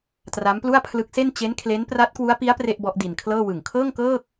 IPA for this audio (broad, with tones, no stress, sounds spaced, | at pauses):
t r a˦˥ m p l u˥˩ a̯ pʰ l ɯ˦˥ k̚ s e˥˩ n t͡ɕ e˦˥ n kʰ l e˦˥ n p r a˦˥ t̚ k w u˦˥ a̯ p i˦˥ a̯ p r e˥˩ ʔ b ɔ˦˥ ʔ d i˧ n kʰ l ɤː˥˩ w ɯ˨˩ ŋ kʰ ɤː˥˩ ŋ k ɤː˥˩ k̚